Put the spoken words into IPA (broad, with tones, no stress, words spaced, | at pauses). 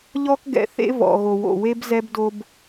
ʎɔ˦kɡɛ̰˨θḛ˦ vɔ̰˨ɣo˨wo̰˨ we˦bzɛ˦bdo˦b